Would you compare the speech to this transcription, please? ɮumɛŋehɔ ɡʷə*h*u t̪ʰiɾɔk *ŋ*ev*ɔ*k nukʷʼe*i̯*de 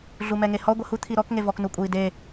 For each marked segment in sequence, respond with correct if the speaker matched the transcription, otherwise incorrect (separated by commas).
correct, correct, correct, correct